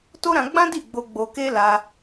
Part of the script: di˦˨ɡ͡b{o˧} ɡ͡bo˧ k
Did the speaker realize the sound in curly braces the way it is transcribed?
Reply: yes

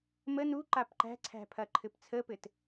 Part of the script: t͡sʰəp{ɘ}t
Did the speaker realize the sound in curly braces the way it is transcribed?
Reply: yes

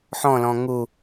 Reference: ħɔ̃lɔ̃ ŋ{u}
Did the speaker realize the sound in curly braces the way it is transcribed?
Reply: yes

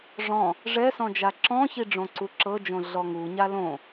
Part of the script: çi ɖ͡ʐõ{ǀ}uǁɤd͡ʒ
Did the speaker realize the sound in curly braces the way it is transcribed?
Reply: yes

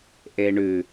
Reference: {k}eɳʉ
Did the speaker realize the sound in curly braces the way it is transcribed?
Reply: no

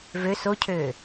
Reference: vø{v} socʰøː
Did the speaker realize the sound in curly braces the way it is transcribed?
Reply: no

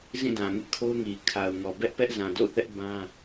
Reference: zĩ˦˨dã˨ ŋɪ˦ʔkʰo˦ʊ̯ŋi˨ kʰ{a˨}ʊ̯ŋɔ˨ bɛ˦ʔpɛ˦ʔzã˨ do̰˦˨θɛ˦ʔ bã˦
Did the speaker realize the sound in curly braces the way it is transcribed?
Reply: yes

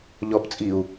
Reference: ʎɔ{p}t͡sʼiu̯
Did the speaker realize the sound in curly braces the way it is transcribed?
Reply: yes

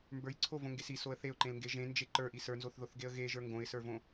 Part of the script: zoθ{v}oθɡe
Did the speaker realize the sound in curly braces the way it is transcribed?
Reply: no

